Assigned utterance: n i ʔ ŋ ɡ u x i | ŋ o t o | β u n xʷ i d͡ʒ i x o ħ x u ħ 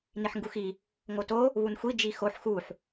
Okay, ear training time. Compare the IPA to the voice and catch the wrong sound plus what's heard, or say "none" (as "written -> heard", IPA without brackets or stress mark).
ʔ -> ħ